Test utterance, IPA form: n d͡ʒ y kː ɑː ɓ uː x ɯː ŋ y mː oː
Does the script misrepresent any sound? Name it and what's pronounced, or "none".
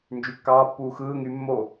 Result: ɓ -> pː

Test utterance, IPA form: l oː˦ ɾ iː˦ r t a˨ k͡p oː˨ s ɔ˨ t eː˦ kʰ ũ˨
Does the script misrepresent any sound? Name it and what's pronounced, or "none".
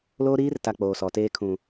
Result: none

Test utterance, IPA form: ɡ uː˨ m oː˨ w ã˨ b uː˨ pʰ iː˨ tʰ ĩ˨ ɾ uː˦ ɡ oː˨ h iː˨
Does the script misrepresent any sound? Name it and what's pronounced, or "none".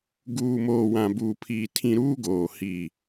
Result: none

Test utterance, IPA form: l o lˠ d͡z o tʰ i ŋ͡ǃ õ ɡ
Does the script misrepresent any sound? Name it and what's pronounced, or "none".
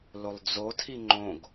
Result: none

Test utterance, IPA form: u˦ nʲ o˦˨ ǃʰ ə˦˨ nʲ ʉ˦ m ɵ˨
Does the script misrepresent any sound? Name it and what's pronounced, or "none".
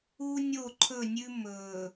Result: ə˦˨ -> ɵ˦˨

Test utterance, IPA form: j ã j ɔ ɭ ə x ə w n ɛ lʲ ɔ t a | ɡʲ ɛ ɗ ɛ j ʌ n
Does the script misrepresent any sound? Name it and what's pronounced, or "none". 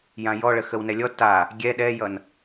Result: none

